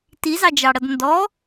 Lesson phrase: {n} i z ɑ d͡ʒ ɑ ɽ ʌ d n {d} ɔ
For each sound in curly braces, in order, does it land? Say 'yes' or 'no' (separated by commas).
no, yes